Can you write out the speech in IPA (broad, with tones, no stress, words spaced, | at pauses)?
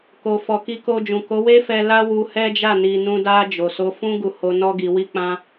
ko˨fɔ˨ ki˧ko˧d͡ʒũ˨ ko˨˦we˦fɛ˧ la˦wu˧hɛ˦d͡ʒa˦˨ ni˨nũ˧da˧ d͡ʒo˨so˧fũ˦ ɡu˧ho˧ nɔ˦ɡi˧wi˦ k͡pã˧